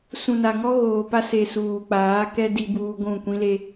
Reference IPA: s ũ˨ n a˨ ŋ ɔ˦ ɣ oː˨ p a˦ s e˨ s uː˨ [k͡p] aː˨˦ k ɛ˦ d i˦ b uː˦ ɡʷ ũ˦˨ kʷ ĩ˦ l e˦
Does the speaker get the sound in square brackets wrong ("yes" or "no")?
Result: no